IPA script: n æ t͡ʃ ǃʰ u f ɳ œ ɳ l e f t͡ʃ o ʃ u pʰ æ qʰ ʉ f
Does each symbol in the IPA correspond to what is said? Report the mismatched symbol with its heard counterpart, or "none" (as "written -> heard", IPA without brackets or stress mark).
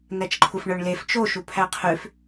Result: none